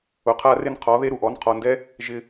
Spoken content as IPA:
ʊ˨qʰa˦ rɪ˦nqʰɔ˨˦ ðe˦ɾu˨ʔɔ˨˦n qʰɔ˨ndɛ˦ | ʒɪ˧

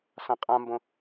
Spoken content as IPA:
sãqʼãmbõ

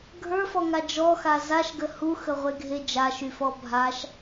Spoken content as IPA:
ɡʱə˞fɔŋa d͡ʒɔxa zaʃɡə huxəʁʷeɡʱe d͡ʒaʃyfɔ bʱaʃ

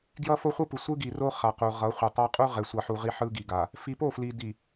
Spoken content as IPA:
ɡjʌ˦fo˦χʷɯ˦pɯ˨ sʷɯ˦ɡi˨ro˦ χa˨qu˨ʁʌ˨˦ χʷe˨tˤa˦ qʼu˦ʁɛ˨sʷʌ˨ħu˨ ʁi˦ħɯ˦ɡi˨ɡa˨ | fi˨po˦˨fli˨di˨

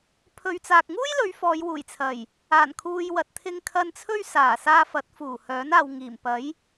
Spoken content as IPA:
pʰɵ˨ɥt͡saː˨k̚ ŋuː˥jlɵ˨˧ɥ fɔː˨˧jwuː˨˩jt͡sʰɐ˨˩j | aː˨˩nkʰuː˨j wɐ˨t̚t̪ʰɪ˧ŋ kʰɐ˧nt͡sʰɵ˥ɥ saː˨˩saː˧fɐ˨˥t̚ fuː˨˩hœː˨˥naː˨wŋiː˨˩m pɐ˨˥j

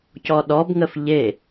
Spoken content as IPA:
cɔɗɔbŋəf ʎe

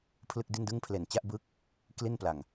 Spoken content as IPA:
pʰlɯ˥˩k̚di˥˩ndɯ˥˩ŋpʰle˨˩n t͡ɕa˥˩ʔ bɯ˦˥k̚ | kli˥˩npla˨˩ŋ

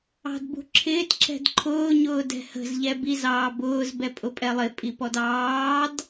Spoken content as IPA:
ɑ̤dbṳǁʰɪːt ǁɛ̤dǃʰʊː ɲʊːdɛ̤hə̤z ʎɛbiz ɑːbʊːz bɛpʼʊpʼɛlˠɪ pʼipɔdɑːd

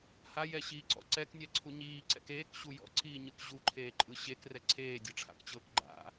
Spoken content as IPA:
hajɛɕiːǀɔ̰ ǀɛknʲɛǀʰu ɲiːǀɛ̰k eːkɕu jɔ̰ǀiːɲɯk ʑuǃʰeːǃʼɯ ɕekrɛ ǀʰeːdʲɤʈ͡ʂʰa̰kt͡ɕɤːk ɡ͡ǃa̰

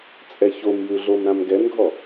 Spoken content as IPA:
t͡sʼɛçomjʉɮom ɾãmɡɛnɡʱɔ

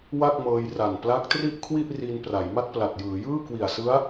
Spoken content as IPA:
wa˥˩k̚mɤː˧jra˨˩n pla˦˥k̚tri˥˩ʔkʰwi˥˩ʔ riː˧npra˩˦jma˥˩t̚pla˨˩t̚ jɯː˩˦jɯː˥˩kwi˨˩a̯sɯ˦˥a̯

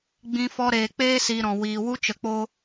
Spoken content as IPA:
ɡ͡bĩ˧ fɔ˦ ɾeː˨k͡peː˦ siː˧ɾɔ̃˨ wiː˨ wu˦t͡ʃə˨k͡po˦

